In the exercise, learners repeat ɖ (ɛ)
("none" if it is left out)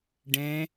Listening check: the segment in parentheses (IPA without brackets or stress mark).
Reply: ɛ̃